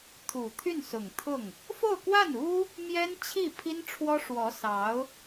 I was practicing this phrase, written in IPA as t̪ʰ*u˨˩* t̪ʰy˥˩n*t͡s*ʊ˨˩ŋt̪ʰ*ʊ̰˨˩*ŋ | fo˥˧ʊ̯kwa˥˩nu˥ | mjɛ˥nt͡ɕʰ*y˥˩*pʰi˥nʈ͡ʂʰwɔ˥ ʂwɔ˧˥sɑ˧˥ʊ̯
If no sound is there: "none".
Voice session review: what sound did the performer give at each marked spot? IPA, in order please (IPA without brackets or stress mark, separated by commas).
u˨˩, s, ʊ˥˩, i˥˩